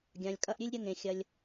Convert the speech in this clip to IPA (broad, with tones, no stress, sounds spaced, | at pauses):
ɡʲ ã˩ lʲ kʼ ɐ˦ ʔ ɾʲ ʉ˥ lʲ ɾʲ ɐ˦ ŋ ẽ˩ xʲ ɐ˩ lʲ